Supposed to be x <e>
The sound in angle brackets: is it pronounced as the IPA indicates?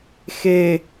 yes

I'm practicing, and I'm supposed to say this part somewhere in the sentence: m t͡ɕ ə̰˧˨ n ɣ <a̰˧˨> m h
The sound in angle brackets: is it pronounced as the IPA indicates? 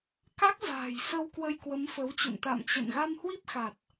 no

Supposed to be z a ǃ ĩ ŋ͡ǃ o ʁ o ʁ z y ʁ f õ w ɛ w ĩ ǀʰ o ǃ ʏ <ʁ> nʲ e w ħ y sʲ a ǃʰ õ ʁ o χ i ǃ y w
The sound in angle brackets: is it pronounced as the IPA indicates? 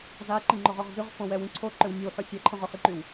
no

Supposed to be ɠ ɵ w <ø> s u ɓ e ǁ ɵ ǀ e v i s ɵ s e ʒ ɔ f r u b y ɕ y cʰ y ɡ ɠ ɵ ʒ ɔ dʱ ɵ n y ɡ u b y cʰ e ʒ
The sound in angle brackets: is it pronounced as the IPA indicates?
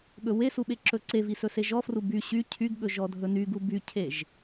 no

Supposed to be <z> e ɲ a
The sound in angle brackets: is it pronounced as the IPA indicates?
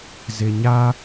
yes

